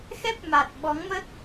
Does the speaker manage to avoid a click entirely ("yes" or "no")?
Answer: yes